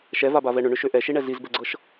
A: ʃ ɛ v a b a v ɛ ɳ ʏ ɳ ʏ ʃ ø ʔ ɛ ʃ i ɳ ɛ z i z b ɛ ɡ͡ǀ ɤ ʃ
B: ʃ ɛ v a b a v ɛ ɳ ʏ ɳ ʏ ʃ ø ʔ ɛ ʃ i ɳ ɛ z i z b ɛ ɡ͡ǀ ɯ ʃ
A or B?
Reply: A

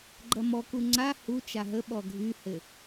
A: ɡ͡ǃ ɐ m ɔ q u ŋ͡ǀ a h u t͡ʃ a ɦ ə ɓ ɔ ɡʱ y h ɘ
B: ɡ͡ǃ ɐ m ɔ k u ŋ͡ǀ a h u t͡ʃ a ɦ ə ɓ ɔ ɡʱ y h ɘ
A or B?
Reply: B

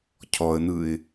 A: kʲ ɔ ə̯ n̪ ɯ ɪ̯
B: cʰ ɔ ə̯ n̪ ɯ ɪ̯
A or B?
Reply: B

